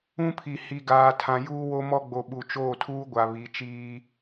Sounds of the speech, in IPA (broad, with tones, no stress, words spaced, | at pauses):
ũ˦pʰi˨ hi˨ɡaː˨ tʰã˨ juː˦wo˦mɔ˦ ɡ͡bo˨ ɓu˨t͡ʃoː˦˨tʰuː˦ɡʷa˨ βi˨˦t͡ʃiː˦